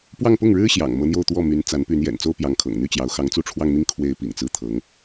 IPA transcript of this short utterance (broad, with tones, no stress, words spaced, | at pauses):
pwɑ˥˧ŋpʊ˥˩ŋɻɻ̩˥ ɕjɑ̰˨˩ŋ mɤ˧˥n̪jo˥˧ʊ̯t̪wɔ˥˩ my˧˥n t͡sa˧˥n py˧˥njɛ̰˨˩n t͡so˥ʊ̯pjɑ˧˥ŋkʰɤ̰˨˩ŋ n̪y˥˩t͡ɕjɑ˧˥ʊ̯ xɑ˧˥ŋt͡su˥˧ʈ͡ʂʰwɑ˥˧ŋn̪i˥˩ŋ kʰwe˧˥ɪ̯ pḭ˨˩ŋt͡sɹ̩˥˩ t̪ʰɤ˧˥ŋ